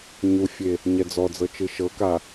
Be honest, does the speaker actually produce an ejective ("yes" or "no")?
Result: no